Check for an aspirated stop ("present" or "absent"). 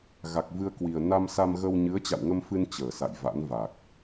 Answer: absent